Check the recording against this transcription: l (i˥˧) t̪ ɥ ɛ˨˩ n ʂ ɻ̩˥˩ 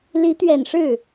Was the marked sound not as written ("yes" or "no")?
yes